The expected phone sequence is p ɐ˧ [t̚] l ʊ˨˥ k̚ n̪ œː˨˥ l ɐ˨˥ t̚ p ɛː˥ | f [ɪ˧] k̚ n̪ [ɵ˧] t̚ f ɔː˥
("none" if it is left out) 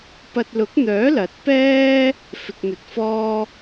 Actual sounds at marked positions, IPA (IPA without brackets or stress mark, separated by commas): t̚, ɪ˧, ɵ˧